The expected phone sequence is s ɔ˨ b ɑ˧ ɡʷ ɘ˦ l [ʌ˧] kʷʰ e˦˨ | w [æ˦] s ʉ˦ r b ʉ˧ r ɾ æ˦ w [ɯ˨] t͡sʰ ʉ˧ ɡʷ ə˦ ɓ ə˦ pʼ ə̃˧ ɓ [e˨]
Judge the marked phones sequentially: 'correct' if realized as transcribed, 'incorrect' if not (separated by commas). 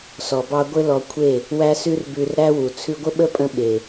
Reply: incorrect, correct, incorrect, correct